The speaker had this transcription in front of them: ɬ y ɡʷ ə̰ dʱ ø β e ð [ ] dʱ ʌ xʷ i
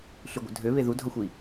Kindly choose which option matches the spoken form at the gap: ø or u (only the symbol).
u